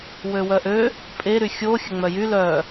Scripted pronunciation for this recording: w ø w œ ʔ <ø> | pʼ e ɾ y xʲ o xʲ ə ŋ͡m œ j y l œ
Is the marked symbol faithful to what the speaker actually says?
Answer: yes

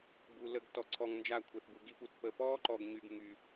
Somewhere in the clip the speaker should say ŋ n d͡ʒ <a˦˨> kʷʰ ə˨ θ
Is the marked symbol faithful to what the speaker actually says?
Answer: yes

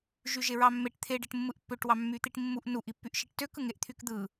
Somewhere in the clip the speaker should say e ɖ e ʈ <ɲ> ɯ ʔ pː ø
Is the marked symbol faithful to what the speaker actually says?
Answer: no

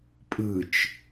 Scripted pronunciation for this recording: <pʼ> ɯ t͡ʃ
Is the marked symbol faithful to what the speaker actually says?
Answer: yes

